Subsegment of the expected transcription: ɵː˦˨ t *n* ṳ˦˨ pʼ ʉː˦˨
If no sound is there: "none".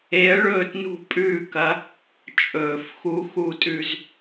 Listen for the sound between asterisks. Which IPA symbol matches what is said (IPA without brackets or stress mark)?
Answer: n